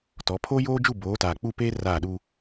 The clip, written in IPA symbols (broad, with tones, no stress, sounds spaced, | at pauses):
t ɔ˨˦ pʰ oː˦ j oː˦ d͡ʒ u˦˨ b oː˨˦ t aː˨ k͡p u˦˨ p eː˦ r aː˦˨ ɗ u˦